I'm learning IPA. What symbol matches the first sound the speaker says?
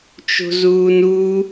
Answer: t͡ʃ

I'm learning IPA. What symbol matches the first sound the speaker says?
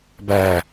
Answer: b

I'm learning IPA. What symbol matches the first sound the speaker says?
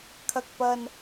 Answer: kʰ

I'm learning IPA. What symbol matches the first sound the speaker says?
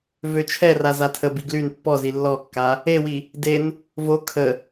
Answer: v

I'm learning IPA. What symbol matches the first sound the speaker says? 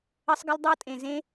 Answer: ə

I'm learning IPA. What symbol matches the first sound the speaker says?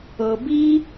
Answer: ɤ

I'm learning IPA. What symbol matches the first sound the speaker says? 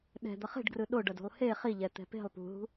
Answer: ɗ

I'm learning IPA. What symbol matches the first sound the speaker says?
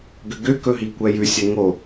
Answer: ɡ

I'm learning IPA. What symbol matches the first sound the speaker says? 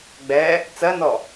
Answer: ɡ͡b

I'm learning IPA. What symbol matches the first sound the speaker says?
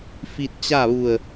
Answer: f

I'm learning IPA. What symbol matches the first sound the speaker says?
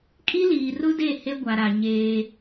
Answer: kʼ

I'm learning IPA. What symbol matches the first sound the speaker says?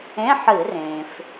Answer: ẽ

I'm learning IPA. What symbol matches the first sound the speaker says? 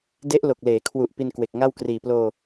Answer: d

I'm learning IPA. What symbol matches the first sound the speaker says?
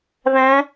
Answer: β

